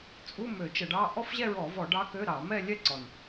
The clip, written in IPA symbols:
t͡sʼ u˧˥˧ m ø˧˩˧ t͡ʃ ə˧˩˧ ɖ ɑ˧˥˧ ʔ ɔ˥˧ f ʑ ɛ˥˧ ɹ ɔ˧˩˧ v ɔ˧˩˧ ɖ ɑ˧˥ k ø˧˥˧ ɾ ɑ˧˩˧ m ɛ˥˧ lʲ ɛ˥˧ ǀ ɔ˨˩ n

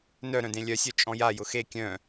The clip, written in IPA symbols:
n œ ɾ œ̃ d ẽ lʲ œ sʲ œ t͡ʃʼ ɔ̃ j a j ʊ x e kʲ œ̃

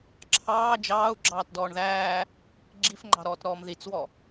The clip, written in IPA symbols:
ǁʰ ɑː d͡ʒ ɑː u̯ ɡ͡ǁ ɑː t d ɔː ɳ ð æː | ɡ͡ǁ i f ŋ͡ǃ ɑ̤ ɾ ɔː t ɾ ɔː m ð i t͡s w ɔ

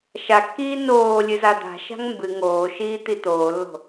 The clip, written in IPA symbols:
ʃ a kː iː n oː lʲ ɨ z a d̪ a̤ ʃ a̤ ŋ m b ɨ ŋ oː ʃ iː t̪ i t̪ oː lː o̤

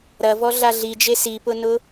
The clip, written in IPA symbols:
ɾ ɐ v ɔ ɮ a ɮ i d͡ʒ e s i p ʊ n ʊ

